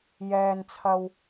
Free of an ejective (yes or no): yes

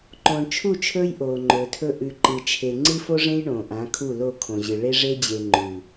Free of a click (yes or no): no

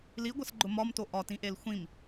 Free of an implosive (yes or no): yes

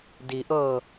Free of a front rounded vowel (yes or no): yes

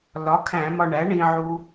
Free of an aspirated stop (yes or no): no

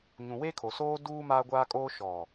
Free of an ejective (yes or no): no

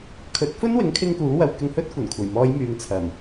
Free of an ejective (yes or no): yes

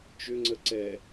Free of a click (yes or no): no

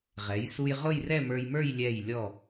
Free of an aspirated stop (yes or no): yes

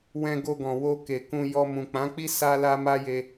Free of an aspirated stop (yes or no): yes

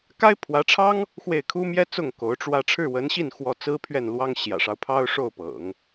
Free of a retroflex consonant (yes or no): no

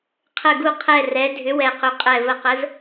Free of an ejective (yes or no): no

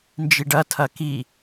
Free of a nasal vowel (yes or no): yes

